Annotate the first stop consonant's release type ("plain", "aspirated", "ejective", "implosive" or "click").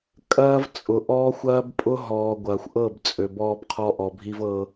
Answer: ejective